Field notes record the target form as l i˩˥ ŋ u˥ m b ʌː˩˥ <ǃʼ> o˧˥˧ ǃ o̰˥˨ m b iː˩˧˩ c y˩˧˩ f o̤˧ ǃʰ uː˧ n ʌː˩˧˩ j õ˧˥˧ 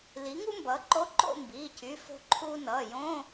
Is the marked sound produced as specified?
no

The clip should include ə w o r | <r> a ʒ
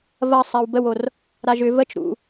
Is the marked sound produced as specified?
no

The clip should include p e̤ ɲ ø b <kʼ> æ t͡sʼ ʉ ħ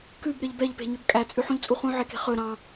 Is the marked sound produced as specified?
yes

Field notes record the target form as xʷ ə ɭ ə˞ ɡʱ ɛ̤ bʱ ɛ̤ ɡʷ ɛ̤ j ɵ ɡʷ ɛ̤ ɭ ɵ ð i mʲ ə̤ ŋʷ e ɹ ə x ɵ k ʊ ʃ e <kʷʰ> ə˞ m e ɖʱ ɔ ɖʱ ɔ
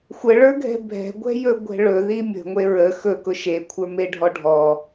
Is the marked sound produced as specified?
yes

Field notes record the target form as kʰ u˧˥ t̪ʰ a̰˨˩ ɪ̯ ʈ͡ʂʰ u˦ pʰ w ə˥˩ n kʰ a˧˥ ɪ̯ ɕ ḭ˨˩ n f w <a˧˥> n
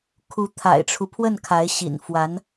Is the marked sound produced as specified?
yes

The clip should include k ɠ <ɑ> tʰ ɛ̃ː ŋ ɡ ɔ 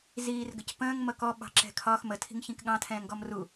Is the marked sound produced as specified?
no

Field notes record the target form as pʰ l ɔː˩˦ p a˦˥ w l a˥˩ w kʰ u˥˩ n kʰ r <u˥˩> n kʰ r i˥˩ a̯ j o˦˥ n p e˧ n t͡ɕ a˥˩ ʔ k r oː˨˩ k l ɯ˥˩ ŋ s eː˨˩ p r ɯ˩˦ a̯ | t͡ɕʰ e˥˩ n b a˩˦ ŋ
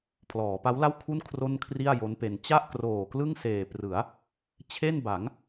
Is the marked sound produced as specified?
no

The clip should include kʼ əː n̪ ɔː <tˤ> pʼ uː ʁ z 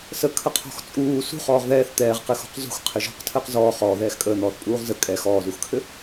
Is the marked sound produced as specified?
no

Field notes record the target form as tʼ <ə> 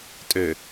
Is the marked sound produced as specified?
no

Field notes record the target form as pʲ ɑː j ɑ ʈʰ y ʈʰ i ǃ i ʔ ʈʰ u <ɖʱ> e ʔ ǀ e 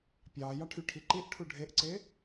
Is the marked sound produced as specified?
yes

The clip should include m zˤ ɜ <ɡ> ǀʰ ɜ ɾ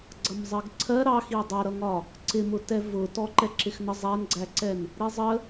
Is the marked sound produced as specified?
yes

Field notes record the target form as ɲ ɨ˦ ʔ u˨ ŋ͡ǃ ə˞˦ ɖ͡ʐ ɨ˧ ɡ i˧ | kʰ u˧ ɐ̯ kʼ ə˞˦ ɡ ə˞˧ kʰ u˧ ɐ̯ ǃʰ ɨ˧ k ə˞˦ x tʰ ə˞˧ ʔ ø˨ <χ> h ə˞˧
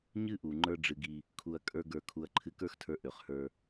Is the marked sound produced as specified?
yes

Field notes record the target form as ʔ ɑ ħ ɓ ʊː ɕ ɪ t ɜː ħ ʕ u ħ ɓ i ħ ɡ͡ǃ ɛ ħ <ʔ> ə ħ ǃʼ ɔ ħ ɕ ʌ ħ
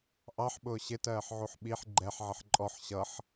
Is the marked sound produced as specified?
no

